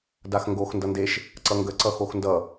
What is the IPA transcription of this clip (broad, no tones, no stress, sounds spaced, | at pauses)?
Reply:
d a x ŋ ɡ o x n d ʌ n d e ʃ | ǀ ʌ ŋ ɡ ə ǀ ʌ x o x n d ʌ